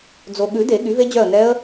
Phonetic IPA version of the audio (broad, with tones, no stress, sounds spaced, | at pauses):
d͡z o˨ ɠ ʉ˨˩˦ d e˨˩˦ ɠ y˩˥ v e˦˥ d͡ʑ œ˦˨ ə̯ n ɛ˦˥ ə̯